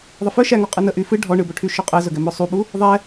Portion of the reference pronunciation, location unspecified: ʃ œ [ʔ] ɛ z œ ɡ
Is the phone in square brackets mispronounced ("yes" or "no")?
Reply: yes